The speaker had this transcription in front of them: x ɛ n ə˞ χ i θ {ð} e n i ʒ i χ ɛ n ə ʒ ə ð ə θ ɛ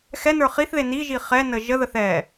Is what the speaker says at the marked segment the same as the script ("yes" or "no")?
yes